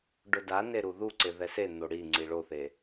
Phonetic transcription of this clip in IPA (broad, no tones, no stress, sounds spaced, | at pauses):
ɖ ʊ d a n e ɾ u ð u ǀ ɪ ð ɛ s e n̪ o ɽ i ŋ͡ǀ i ɭ o θ e